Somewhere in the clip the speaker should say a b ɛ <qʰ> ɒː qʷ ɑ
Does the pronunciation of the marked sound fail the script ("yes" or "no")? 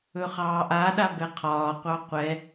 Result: no